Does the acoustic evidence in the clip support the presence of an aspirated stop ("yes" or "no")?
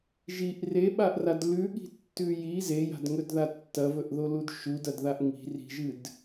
no